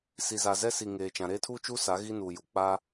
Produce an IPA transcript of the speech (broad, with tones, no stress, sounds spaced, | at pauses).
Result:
s i˨ z a˨ z ɛ˦ s i˨ ŋ eː˨ t͡ʃ ã˨ ɾ eː˦ tʰ u˦ t͡ʃ u˦ s a˨˦ ɣ i˦ n uː˨ j u˨ k͡p a˦